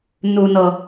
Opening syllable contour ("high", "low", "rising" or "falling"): low